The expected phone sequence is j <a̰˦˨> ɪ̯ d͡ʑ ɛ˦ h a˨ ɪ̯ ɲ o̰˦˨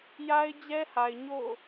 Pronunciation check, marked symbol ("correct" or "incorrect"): incorrect